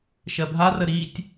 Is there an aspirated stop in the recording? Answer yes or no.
no